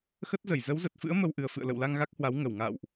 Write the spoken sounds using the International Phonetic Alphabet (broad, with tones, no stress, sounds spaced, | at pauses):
x ə˦˥ t̚ z ə˧˩ j z ə˨˦ w z ə˨˩ t̚ f ɨ̰˧˥ ə̯ m ə˧ w ʔ ɨ˨˩ ə̯ f ɨ̰˧˨ ə̯ l ə̰˧˨ w l a˧ ŋ ɣ a˦˥ k̚ h w a˨˦ w ŋ ə˧˩ w ŋ a̰ː˧˨ w ʔ